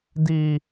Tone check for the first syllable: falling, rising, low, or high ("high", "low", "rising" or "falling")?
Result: high